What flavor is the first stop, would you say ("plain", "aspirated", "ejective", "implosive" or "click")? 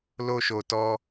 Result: plain